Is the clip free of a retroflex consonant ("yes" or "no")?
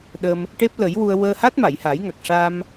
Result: no